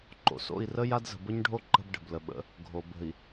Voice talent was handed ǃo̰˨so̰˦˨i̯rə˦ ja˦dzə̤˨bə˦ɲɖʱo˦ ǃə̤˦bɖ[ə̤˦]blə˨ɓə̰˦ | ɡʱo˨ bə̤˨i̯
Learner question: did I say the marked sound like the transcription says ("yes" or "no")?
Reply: no